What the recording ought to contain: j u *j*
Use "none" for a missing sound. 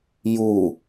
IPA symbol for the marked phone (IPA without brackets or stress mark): none